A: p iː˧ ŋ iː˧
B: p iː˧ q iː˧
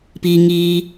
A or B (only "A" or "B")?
A